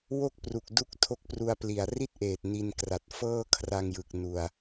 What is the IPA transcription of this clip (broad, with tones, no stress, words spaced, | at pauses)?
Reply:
wo˥˩k̚pru˨˩k̚du˦˥k̚ tʰo˦˥k̚pru˧a̯ pli˨˩a̯ri˥˩t̚ʔeː˨˩t̚ ni˧nkra˨˩t̚ fɤː˥˩kʰra˧ŋjɯ˨˩k̚ nu˧a̯